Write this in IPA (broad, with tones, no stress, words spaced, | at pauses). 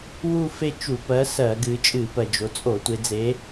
wu˥˧fe˥˧ t͡ʃu˧˩˧pɜ˨˥sɜ˧˩˧ɡɨ˩˧ t͡ʃʼɨ˧˩˧pɜ˩d͡ʒo˩˧t͡sʼo˧˩˧ tʷe˩˧d͡ze˨˥